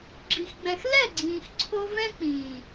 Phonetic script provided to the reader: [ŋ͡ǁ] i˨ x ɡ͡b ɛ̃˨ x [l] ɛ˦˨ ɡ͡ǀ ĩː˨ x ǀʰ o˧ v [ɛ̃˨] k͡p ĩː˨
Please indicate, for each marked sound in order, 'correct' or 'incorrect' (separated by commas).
incorrect, correct, incorrect